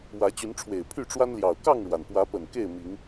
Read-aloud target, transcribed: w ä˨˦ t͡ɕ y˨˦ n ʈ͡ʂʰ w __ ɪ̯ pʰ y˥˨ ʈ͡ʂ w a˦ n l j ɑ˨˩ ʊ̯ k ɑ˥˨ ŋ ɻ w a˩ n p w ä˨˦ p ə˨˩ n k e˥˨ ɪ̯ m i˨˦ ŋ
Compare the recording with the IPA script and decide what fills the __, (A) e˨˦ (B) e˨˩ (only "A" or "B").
B